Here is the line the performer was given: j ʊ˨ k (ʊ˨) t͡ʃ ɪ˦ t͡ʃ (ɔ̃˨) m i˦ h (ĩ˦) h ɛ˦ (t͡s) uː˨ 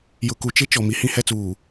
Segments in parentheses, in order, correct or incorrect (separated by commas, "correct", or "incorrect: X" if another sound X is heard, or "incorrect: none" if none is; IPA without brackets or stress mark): incorrect: u˨, incorrect: ɔ˨, correct, correct